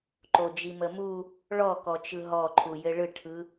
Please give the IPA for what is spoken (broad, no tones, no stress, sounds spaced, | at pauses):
ǃ o d͡ʒ i m ə m u | ɭ ɔ k ɔ t͡ʃ ɯ ɦ ɔ ǃʰ u j ɘ ɭ ɯ ʈʰ ɯ